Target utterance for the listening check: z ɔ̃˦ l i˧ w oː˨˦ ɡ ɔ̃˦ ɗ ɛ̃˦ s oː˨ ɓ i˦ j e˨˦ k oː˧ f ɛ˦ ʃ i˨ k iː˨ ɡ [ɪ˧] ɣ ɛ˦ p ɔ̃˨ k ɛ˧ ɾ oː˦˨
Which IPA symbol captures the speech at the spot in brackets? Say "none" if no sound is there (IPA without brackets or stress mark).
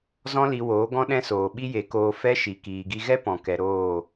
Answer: i˧